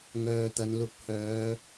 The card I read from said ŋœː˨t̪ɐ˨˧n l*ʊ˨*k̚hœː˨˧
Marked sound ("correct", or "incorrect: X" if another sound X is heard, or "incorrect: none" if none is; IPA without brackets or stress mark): correct